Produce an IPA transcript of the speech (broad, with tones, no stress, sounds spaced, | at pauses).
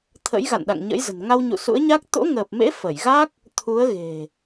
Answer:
t̪ʰ ə̰˧˥ j ɣ a̰˧˨ n ɗ a̰˧˨ ŋ ɲ ə̰˧˥ j z ə̤˨˩ n ŋ a˧ w ɲ ṵ˧˨ s ṵ˧˥ ə̯ ɲ a˦˥ k̚ t̪ o̰˧˥ ŋ əː˨˩ p̚ m ḛ˧˥ f ə˧˩ j ɣ a˦˥ k̚ | t̪ʰ u˨˦ ə̯ ɣ e̤˨˩